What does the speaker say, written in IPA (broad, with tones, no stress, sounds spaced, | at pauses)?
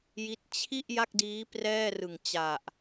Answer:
j i˦˥ t̚ t͡ɕʰ i˥˩ ʔ j a˥˩ k̚ d iː˦˥ p r ɛː˥˩ r ɯ˨˩ ŋ t͡ɕ a˨˩ ʔ